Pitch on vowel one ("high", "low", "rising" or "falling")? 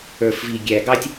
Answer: low